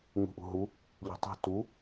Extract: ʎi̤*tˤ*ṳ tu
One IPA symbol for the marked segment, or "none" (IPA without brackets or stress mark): tˤ